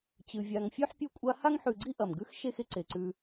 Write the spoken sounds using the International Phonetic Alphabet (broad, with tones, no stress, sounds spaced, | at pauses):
t͡ɕ ɨ˩ vʲ a˨ ŋ fʲ ʉ˥ ħ pʲ o˦ kʷʼ a˦ h a˥ ŋ ħ ʉ˨ ɡ͡ǀ i˥ ʔ ɐ˩ m ɡ ʉ˥ x ʃ e˥ x e˦ ǀ e˩ ǀ ʉ˨